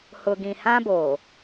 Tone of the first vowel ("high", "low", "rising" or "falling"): low